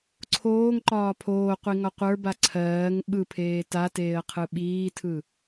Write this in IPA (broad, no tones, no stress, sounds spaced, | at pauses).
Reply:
ǀʰ oː ŋ ǃ ɒː pʰ oː qʷ i ŋ ɒ qʷ ə˞ b a ǀʰ ɜː ŋ ɓ ɯ pʰ eː t a t eː ə̯ qʰ ɯ ɓ iː tʰ ɯ